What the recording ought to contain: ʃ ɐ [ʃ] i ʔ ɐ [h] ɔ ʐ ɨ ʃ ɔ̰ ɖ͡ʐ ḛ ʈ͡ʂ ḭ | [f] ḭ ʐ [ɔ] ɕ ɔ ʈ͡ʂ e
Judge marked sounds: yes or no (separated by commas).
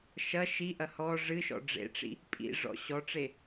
yes, yes, no, no